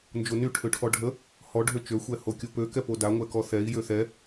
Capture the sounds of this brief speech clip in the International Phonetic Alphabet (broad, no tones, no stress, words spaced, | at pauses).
nd͡ʒony ʈʰøʈʰɔɖʱə | hɔ ɖʱøt͡ʃø xʷɛhokʲopø kɛpoda ŋʷɛkɔθɛi̯ jøθɛ